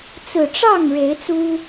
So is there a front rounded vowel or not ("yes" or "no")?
no